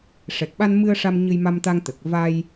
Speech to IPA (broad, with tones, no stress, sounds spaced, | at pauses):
ʂ ɛ˨˩ k̚ ɓ a˧ n m ɨ˧ ə̯ ʂ a˧ m ɲ ɨ˧ j m a˧ m t̪ a˧ ŋ t̪ ə˨˩ k̚ v a˧ j